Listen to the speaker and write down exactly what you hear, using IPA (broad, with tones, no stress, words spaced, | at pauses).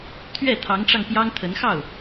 t̪ʰɥɛ˥˩t̪ʰɑ˧˥ŋʈ͡ʂɑ˧ŋ pjɑ˥ŋt̪ʰə˧˥n xɑ˥˩ʊ̯